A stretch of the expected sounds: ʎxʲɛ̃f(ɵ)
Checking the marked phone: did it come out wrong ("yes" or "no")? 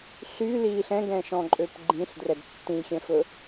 no